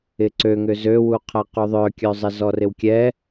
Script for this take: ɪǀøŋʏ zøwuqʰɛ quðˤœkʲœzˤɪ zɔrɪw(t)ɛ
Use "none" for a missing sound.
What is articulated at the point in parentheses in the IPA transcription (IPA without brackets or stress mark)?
kʲ